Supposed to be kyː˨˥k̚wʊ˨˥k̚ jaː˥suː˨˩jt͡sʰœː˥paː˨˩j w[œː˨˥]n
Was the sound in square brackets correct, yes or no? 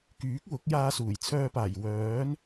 yes